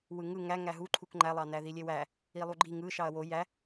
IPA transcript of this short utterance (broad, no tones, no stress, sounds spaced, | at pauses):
w ɯ ŋ ɯ ŋ æ ŋ æ ɦ u ǃʰ u k ŋ͡ǃ æ lˠ ɑ n æ ð i lʲ e w æ | i lˠ u ɡ͡ǃ i ŋ ɯ ʃ ɑ ɐ̯ w o j æ